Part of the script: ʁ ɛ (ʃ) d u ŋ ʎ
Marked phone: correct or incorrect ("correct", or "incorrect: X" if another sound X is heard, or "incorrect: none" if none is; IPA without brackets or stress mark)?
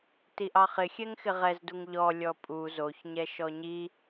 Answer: incorrect: z